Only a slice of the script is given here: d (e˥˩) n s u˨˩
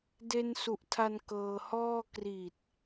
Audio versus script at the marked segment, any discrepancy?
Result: yes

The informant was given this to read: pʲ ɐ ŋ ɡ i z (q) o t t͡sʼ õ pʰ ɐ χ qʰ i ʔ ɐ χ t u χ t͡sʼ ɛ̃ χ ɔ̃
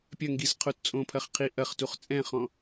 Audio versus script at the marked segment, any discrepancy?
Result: yes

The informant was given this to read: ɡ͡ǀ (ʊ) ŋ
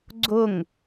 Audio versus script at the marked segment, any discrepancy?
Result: no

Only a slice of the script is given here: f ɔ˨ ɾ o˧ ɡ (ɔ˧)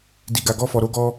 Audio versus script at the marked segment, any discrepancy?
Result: no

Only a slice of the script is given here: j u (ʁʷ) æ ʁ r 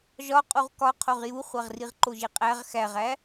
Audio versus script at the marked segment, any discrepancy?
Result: yes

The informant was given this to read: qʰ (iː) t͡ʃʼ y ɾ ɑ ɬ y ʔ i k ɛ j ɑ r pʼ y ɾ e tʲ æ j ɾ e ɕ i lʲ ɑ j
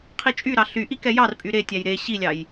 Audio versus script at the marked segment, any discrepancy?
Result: yes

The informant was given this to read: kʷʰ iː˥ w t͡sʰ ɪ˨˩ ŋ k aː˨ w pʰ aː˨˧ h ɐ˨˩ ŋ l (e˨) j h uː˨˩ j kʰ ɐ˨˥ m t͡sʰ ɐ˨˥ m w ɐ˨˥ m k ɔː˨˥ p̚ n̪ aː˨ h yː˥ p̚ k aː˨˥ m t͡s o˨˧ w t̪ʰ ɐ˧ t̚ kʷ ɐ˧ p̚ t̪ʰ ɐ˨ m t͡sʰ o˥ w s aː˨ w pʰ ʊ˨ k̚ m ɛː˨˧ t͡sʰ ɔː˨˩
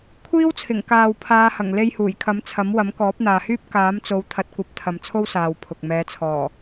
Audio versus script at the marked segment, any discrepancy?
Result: yes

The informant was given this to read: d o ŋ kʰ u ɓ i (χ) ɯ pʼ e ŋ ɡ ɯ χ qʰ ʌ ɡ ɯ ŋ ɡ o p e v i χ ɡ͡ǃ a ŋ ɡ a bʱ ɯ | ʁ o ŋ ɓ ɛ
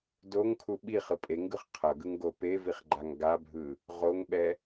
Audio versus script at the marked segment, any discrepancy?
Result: no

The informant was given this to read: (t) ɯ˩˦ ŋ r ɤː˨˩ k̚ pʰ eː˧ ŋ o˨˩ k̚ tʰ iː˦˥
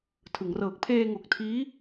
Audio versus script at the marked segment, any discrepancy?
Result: yes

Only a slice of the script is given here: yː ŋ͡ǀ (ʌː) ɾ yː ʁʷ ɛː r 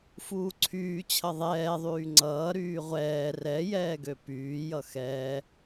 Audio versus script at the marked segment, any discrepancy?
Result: no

